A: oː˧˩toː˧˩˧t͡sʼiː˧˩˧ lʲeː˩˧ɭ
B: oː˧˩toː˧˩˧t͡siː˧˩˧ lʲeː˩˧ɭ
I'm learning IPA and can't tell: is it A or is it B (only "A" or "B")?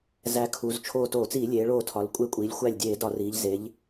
B